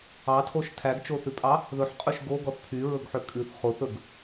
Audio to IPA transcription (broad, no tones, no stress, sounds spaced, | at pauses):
ɑ tʰ o ʃ tʰ æ ɡ t͡ʃ o θ ʉ pʼ ɑ | ð ɵ ħ qʼ ɵ ʃ ɡ o ɡ ɔ θ pʰ y ɹ ɵ ɡ ħ ø kʼ ʉ θ χ o θ ɵ ɡ